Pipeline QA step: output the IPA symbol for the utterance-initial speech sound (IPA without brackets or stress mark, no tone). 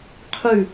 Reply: qʰ